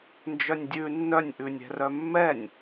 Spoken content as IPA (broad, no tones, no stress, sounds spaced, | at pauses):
n d͡ʒ œ nʲ dʲ ʉ nː œ nʲ ʔ ʉ nʲ ɛ̤ r œ mː ɛ nʲ